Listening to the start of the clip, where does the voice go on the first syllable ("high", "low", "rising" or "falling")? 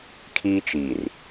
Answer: high